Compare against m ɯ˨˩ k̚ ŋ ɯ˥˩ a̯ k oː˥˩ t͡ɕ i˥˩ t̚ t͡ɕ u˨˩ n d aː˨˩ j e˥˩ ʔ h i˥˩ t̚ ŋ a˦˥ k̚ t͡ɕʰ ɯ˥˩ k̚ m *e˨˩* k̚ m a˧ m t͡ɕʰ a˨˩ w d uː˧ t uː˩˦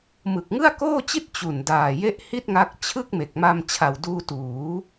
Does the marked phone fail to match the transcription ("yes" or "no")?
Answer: no